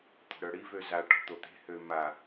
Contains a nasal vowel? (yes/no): no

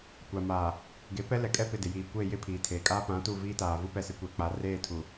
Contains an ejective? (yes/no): yes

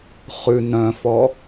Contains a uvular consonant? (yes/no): yes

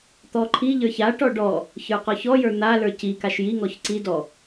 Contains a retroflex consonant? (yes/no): yes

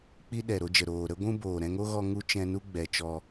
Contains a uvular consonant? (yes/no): no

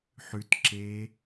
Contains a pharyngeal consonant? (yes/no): yes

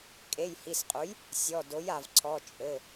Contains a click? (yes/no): yes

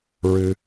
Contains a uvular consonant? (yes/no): no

